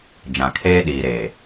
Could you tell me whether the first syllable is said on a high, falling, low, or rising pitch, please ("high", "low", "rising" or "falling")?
low